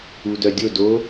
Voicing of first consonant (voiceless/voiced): voiced